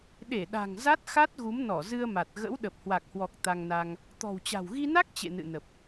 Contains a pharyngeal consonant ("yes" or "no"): no